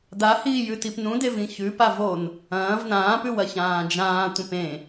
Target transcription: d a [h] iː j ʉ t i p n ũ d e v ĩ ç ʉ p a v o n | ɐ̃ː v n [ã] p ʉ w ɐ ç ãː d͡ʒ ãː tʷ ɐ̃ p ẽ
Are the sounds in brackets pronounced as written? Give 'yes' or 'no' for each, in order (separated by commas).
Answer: yes, no